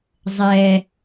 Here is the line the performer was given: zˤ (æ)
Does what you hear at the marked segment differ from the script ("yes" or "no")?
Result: yes